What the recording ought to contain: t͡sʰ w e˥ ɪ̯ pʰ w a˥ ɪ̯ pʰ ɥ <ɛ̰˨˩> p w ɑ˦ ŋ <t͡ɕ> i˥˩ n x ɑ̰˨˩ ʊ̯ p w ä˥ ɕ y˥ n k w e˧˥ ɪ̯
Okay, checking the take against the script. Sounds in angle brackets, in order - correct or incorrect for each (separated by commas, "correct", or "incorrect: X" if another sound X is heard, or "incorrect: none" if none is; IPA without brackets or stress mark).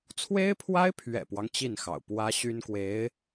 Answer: correct, correct